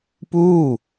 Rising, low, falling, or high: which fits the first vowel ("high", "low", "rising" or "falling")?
falling